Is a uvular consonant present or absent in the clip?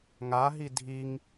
absent